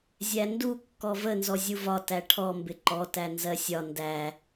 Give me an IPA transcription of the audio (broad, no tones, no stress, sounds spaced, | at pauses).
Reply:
zʲ æ n d u kː ɔ v ə n z ɔ zʲ u v ɒ t æ ʈʰ ɔ m b ɪ ǃ ɔ t æ n z ɜ sʲ ɒ n d æ